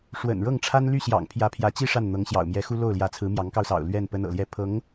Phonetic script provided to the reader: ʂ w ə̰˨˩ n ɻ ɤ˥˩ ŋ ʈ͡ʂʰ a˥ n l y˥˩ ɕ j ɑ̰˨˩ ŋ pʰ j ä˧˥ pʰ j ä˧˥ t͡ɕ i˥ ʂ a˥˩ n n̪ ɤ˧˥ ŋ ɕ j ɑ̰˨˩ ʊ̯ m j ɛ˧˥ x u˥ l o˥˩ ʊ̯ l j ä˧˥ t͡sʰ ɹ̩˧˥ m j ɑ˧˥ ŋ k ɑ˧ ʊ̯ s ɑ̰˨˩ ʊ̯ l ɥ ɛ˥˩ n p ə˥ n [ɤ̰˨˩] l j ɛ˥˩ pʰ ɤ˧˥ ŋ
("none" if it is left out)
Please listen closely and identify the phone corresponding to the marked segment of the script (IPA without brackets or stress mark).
ɤ̰˨˩